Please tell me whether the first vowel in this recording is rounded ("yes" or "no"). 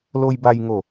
yes